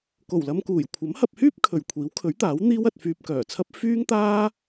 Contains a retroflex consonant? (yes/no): no